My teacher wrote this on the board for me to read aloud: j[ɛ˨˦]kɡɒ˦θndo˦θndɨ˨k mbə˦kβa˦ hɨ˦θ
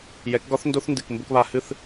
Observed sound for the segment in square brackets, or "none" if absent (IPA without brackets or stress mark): ɛ˨˦